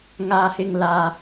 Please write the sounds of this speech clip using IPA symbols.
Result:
ŋ aː˨ h ɪ˨ ŋ l aː˨

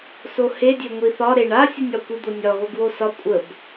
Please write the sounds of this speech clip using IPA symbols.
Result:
s o h e dʲ ø ŋʷ i θ ɒ ɾ e ɳ a sʲ u nʲ ɒ kʷ i d̪ o nʲ ɒ ɣ o ɡ w o s ɒ kʷʼ ə b

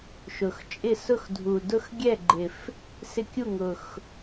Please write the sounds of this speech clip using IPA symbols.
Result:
ʃ ʊ˨˩ x t͡ʃʼ ɪ˥˩ s ʊ˥˩ x dʱ u˨˩ d ʊ˥˩ x ɡʲ ɛ˥˩ ɡ͡ǃ ɪ˨˩ f | s ɪ˥˩ kʲ u˥˩ ŋ ʊ˨˩ x

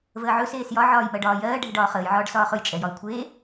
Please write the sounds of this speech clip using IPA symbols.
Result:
v əː ʕ ɵ s eː s j ɒ ʕ ɒː j m ɜ ɖ ɒː j ɜː ɖʱ ɛ ɖ ɒː χ əː j ʕ ɒː ɖ s ɒː χ ɵ j t͡ʃʼ ɛ j ɒ i̯ kʷʰ eː

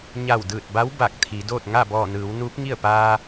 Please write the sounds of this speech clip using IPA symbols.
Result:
ɲ a˧˩ w d ɯː˧˩ t̚ b a˧˥ w b a˧˩ k̚ t̪ʰ i˩˧ d oː˥˨ t̚ ŋ a˥˨ b ɔː˧˩ n ɯː˩˧ w n uː˧˥ p̚ ŋ i˥˨ ə̯ p aː˧

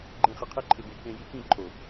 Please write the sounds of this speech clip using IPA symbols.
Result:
ɡ͡ǃ ẽ˨ χ ɪ˨ qʰ e˦ ǃʰ ɪ˨ b e˨ k ẽ˨ j i˨˦ k ĩ˦˨ ǃʰ o˨

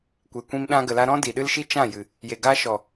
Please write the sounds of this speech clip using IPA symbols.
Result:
kʷ e˨ kʷ ĩ˧ m ɗ ã˧ ɡ ə˨ l a˧ ɾ ɔ̃˦ d i˨ ɗ ɨ˦ l ʃ i˦ t͡ʃ ã˦˨ j ɨ˨ | j e˨ ɡ a˧ ʃ ɔ˨

